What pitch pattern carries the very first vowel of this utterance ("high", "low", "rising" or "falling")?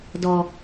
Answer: low